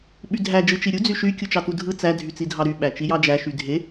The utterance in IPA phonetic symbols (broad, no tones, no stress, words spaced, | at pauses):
ɓydʱæ d͡ʒɯt͡ʃiɾʲu d͡zyʃy kʲut͡ʃɑtudʱɯ t͡sæ dʱyt͡sidʱɑɾy ɓæt͡ʃijɑd͡ʒæ ʃydʱe